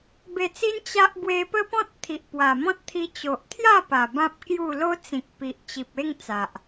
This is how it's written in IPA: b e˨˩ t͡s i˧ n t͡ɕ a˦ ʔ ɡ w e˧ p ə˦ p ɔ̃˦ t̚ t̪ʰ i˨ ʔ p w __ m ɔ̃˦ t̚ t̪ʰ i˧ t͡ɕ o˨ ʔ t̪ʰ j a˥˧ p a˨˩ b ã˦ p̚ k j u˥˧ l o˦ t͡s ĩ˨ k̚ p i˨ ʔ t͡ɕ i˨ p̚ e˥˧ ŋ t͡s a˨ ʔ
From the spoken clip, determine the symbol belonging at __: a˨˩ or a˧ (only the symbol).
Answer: a˨˩